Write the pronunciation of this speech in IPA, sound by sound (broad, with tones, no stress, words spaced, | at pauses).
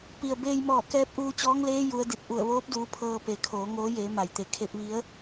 pi˩ə̯ beː˧j mɔː˧˩ kɛː˧˥p̚ʔuː˧t͡ɕɔː˧˥ŋleː˧˥ ju˩˧ə̯ di˧˩t̚ʔu˧˩ə̯ʋoː˧˥p̚duː˩˧ pʰɤː˧ pe˩˧kʰoː˩˧ ŋoː˧˥jeː˩˧ ma˩jt̪e˩˧ kʰe˧p̚ʋi˧˥ə̯